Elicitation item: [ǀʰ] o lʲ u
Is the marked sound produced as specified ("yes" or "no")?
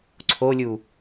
yes